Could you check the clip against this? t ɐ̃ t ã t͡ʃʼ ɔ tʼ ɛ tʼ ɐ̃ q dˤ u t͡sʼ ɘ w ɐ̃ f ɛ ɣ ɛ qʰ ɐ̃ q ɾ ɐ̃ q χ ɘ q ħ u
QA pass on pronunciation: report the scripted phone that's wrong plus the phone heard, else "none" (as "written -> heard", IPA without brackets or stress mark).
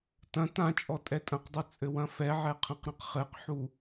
ɣ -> ʕ